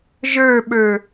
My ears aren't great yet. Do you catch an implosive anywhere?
yes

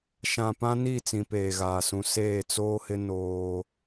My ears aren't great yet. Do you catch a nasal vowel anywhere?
yes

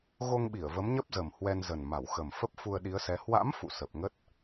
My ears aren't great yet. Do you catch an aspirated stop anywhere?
no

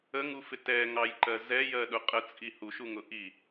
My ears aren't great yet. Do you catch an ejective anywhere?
yes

